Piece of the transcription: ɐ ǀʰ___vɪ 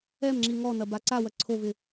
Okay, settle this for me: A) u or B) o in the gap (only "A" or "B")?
B